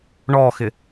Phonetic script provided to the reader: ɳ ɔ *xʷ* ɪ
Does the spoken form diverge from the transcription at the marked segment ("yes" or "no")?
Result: yes